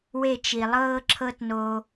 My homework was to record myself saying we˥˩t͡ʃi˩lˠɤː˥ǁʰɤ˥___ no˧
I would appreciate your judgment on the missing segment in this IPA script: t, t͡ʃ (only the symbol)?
t